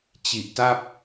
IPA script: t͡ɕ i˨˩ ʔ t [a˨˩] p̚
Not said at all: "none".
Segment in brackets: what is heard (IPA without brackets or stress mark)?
a˥˩